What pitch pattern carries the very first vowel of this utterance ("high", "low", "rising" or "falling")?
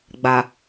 low